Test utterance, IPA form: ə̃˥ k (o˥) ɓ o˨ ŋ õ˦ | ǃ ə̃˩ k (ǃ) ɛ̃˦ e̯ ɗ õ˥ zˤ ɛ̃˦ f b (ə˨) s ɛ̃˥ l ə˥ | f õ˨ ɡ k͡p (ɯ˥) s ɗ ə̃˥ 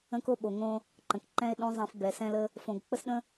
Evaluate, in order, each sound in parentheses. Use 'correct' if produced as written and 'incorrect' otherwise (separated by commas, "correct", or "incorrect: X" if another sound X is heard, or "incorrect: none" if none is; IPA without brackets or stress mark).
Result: correct, correct, incorrect: ɛ˨, incorrect: ə˥